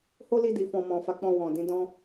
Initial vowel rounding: rounded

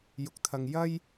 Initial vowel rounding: rounded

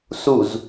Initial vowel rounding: rounded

